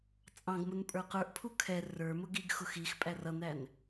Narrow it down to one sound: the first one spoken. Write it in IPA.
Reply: t͡sʼ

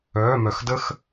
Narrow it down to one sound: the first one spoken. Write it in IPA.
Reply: œː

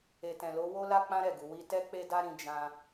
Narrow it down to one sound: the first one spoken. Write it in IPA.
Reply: e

